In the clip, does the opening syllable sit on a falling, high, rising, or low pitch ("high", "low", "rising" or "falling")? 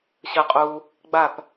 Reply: low